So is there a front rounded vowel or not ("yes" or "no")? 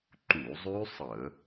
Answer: yes